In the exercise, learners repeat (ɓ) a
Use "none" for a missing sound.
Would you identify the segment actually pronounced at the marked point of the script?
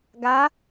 ɡ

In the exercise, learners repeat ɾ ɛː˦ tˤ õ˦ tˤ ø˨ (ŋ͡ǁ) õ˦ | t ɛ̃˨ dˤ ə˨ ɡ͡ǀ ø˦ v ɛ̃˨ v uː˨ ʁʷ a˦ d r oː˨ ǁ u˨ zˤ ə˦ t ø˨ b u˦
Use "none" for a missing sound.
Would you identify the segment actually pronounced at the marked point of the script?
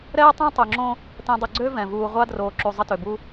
ŋ͡ǁ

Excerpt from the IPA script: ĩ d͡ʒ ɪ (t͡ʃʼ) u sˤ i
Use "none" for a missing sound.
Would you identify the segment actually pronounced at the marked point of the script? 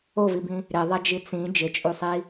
t͡ʃʼ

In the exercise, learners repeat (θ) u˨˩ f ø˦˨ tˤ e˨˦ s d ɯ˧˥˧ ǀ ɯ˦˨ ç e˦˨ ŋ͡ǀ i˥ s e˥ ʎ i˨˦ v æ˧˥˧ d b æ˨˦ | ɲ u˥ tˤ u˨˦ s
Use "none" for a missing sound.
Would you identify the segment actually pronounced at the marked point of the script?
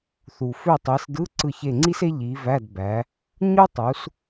θ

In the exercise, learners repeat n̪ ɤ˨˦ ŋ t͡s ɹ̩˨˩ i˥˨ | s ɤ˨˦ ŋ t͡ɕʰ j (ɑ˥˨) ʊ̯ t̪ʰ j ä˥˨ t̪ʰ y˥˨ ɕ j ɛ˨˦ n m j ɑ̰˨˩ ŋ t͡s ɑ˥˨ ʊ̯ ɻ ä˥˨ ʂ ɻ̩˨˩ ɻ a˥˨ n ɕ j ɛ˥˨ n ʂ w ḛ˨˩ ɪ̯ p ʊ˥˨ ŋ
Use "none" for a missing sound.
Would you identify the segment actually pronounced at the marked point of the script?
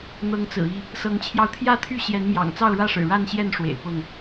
ɑ˧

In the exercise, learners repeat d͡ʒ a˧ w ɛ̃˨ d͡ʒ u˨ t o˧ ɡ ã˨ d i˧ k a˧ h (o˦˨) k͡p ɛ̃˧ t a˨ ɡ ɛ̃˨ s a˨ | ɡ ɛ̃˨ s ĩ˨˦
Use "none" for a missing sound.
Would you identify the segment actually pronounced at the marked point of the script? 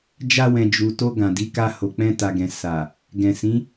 o˨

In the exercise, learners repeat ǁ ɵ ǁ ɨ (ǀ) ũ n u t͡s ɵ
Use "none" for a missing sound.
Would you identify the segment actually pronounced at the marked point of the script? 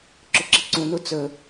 ǀ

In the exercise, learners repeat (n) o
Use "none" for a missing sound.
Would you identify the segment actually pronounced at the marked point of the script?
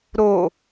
ɾ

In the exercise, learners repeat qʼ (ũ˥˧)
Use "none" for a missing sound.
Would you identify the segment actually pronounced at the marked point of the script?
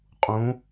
ũ˩˧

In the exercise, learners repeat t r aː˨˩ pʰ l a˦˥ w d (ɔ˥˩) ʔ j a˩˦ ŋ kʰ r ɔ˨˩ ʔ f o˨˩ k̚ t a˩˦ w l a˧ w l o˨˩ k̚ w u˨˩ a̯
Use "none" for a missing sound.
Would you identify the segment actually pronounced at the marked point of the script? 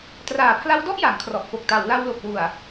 ɔ˥˩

